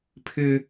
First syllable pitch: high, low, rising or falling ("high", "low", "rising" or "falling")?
high